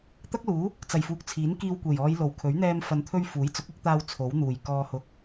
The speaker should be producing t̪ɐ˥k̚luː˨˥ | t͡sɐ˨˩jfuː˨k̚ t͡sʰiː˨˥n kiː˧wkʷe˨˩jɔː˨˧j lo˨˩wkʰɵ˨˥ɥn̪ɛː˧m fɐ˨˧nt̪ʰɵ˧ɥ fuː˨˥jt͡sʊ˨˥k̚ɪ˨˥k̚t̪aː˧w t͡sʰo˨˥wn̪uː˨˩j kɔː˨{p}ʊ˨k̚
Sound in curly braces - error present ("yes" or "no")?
yes